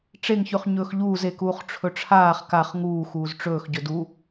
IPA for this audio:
ʈ͡ʂ e ŋ ç ʉ χ ɲ ɵː x ʎ uː z e k uː χ ʈ͡ʂʰ ɵ ʈ͡ʂʰ aː χ k a χ ŋ uː x uː z ʈ͡ʂ ɵː x ɟ ɵ d u

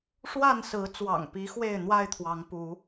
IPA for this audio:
ʂ w a˥˨ n s ɹ̩˨˦ t͡s w ɑ̰˨˩ ŋ p i˨˦ x w e˥˨ ɪ̯ n̪ w a˥˨ ɪ̯ t̪ʰ w ɑ˨˦ ŋ p u˨˦

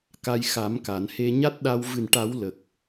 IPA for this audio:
k a˧ j x a˨˩˦ m k a˨˩˨ n h e˧ ɲ a˦˥ t̚ ɗ a˧ w v ɨ˨˩ n ʈ a˨˩˦ w l ə˨˩ k̚

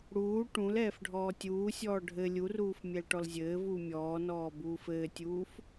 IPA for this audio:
ɽ uː ʈ ũ l ɛː f ɖʱ ɔː tʲ uː sʲ ɔː ɖʱ ɘ lʲ u r uː f mʲ ɛ l ʈ ɔ l zʲ ɘː v uː mʲ ɔː n ɔː b uː f ɘː tʲ uː f

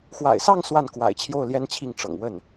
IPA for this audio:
x w a̰˨˩ ɪ̯ s ɑ˥˧ ŋ s w a˥˩ n k w a̰˨˩ ɪ̯ t͡ɕʰ j o˥˩ ʊ̯ l j ɛ˥ n t͡ɕʰ i˥˩ ŋ ʈ͡ʂ ɤ̰˨˩ ŋ w ə˥˩ n

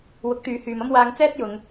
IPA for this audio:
w ʊ˨˥ k̚ t̪ yː˨ h yː˨ m ɐ˥ m w aː˧ ŋ t͡s ɛː˥ t̚ j ʊ˨˧ ŋ

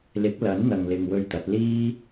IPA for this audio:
l ɪ˨˥ k̚ l ɐ˨˥ n n̪ ɐ˨ ŋ l ɪ˨ ŋ w ɵ˧ ɥ t̪ ɐ˨˥ t̚ l iː˥

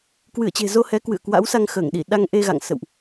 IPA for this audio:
k w ɨ˧˩ ə̯ t͡ɕ e̤˨˩ z o˧ h ɛ˨˦ k w ɨ̰˧˨ ə̯ k w a̰˧˥ w s a˧ ŋ x əː˧˩ ŋ ɗ i˧˩ ɗ a˧ ŋ ʔ e˧ ɣ a̰˧˨ ŋ s ə̰˧˨ w ʔ

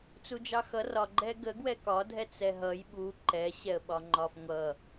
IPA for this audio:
t͡s u d͡ʒ ɑ x ʌ r ɒ ɡ͡ǃ ɛ ɡ ə ɡ w ɛ k ɒ dʱ ɛ t͡s ɛ ɦ ʌ j ɓ u ǃ ɛ ɕ ɛ ə̯ ɓ ɒ ŋ͡ǃ ɒ f ŋʷ ʌ

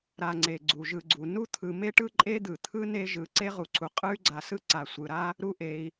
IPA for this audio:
ɾ a˨ ŋ͡ǀ e˩ ɡ͡ǀ u˩ ʒ ɯ˨ ɡ͡ǀ u˩ n u˥ t̪ʰ ɯ˨ m e˥ ʈ ɯ˥ ǃʼ e˥ d̪ ɯ˩ t̪ʰ ɯ˥ n e˦ ʒ ɯ˨ ǀ e˥ ʁ u˨ ǀʰ u˩ qʼ ɯ˥ y̯ ɡ͡ǀ a˨ s ɯ˥ ǀ a˩ sʷ ɯ˩ ɾ a˥ | ɾ u˦ ʔ e˨ i̯

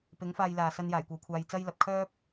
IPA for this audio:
p ɪ˨˥ ŋ f aː˧ j l aː˨ s ɐ˧ n j aː˨˩ j kʷ ɐ˨ w kʷʰ aː˧ j t͡s ɐ˥ j l ɐ˨˥ p̚ kʰ œː˥ p̚

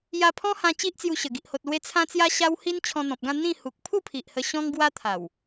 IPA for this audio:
j a˧ pʰ ɔ̃˦ h ã˧ t͡ɕ i˦ ʔ t͡s j u˧ ɕ ə˨˩ ɡ i˨ ʔ h o˨ t̚ l w e˧ t͡sʰ ã˦ t͡s j a˦ ɕ a˦ w h i˦ n t͡ɕʰ ɔ̃˧ n̪ ɔ̃˨ p̚ ɡ ã˥˧ n̪ ĩ˥˧ h u˨ k̚ pʰ u˥˧ pʰ i˨ ʔ h ə˧ ɕ ɔ̃˦ ŋ ɡ w a˦ t̪ʰ a˨˩ w

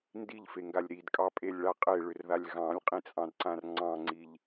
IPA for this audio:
n d i ʎ f e ŋ ɡ a lʲ ɾ i d kʼ ɑ pʼ e lʲ ɭ a qʼ e ɭ ʏ r ð a lʲ ɣ ɑ̃ lʲ qʼ ĩ t͡sʼ ɑ̃ d ǀ ã r ŋ͡ǀ ɑ̃ ŋ͡ǀ i ʎ

